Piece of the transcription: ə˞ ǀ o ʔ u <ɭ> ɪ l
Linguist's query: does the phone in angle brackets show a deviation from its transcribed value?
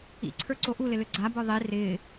yes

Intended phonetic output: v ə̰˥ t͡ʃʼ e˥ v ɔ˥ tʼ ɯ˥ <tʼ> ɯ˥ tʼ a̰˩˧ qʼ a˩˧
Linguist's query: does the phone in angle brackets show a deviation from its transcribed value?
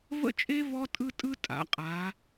no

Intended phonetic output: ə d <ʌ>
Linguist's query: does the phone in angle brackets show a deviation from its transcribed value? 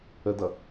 no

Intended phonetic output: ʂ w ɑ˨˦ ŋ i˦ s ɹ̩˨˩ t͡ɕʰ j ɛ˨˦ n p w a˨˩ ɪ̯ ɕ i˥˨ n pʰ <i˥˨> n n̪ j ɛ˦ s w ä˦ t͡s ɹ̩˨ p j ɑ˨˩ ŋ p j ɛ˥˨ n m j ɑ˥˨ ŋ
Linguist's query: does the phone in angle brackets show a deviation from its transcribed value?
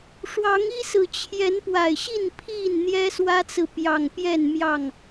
no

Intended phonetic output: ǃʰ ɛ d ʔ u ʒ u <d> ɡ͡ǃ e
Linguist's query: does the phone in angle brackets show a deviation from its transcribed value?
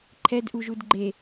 no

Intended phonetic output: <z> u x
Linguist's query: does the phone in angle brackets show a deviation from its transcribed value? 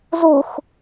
no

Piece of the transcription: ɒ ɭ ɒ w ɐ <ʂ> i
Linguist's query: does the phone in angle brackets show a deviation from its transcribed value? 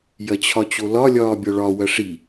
no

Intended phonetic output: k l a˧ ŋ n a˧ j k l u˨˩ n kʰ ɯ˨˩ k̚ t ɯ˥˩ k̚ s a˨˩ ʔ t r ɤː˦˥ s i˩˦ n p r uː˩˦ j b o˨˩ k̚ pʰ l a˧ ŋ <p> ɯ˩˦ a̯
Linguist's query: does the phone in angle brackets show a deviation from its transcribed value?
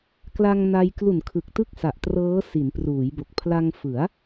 yes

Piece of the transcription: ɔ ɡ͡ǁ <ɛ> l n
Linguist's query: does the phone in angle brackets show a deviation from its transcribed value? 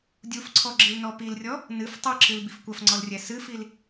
yes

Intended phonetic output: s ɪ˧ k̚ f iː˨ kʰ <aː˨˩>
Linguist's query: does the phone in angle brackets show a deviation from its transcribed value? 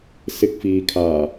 no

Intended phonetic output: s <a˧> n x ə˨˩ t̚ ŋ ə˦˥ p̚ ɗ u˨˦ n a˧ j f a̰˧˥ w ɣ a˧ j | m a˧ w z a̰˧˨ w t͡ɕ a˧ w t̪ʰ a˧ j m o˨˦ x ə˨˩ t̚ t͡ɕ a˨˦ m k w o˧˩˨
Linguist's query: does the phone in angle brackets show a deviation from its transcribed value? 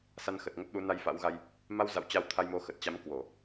no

